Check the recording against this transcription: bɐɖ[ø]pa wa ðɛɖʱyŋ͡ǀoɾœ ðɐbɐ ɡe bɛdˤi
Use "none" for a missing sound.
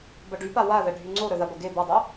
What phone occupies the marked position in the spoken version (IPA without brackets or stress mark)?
y